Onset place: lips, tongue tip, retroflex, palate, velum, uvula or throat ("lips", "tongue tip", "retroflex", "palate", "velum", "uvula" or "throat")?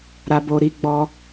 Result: tongue tip